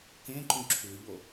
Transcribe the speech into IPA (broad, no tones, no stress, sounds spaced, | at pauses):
k ẽ ǃ ũ ǁʰ ʉ ʎ o